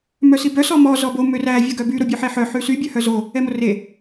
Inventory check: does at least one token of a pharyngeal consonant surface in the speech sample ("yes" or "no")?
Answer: yes